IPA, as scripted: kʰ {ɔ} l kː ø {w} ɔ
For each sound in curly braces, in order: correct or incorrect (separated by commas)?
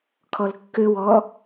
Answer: correct, correct